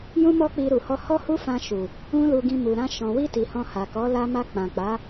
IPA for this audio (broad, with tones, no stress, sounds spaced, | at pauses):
j ũ˦ m ɔ˦ k͡p i˧ ɾ u˨ h ɔ˧ h ɔ˦ h u˦ f ã˧ ʃ u˨ | ũ˦ l u˧ ɡ ĩ˧ m u˨ ɾ ã˧ ʃ ɔ̃˨ w i˧ t i˨ h ɔ̃˧ h a˨ k ɔ˨˦ l a˧ m a˧ k͡p ã˨ k͡p a˨˦